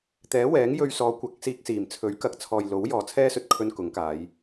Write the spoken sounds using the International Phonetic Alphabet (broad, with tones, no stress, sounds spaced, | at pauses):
t̪ ɛː˨˥ w ɛː˨˥ ŋ j ɵ˧ ɥ s ɔː˨˧ kʷ ɐ˨˥ k̚ s iː˧ k̚ s iː˨˩ m t͡sʰ ɵ˨˥ ɥ k ɐ˨ k̚ t͡sʰ ɔː˨ j l o˨˥ w j ɔː˨ t͡sʰ ɛː˥ s ɵ˧ t̚ kʰ ɵ˧ n k ʊ˨˥ ŋ k aː˨˧ j